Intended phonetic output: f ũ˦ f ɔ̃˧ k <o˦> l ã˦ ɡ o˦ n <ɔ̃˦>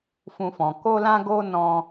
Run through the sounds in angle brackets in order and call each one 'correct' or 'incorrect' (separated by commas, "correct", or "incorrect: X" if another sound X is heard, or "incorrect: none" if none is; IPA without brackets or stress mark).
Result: correct, correct